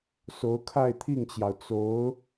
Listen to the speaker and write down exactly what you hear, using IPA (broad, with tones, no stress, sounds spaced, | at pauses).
s o˧˥ ʊ̯ kʰ a˥˧ ɪ̯ t̪ʰ i˥˩ ŋ t͡ɕ j ɑ˩ ʊ̯ t͡s o˧˥ ʊ̯